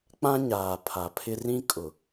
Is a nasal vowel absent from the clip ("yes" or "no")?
no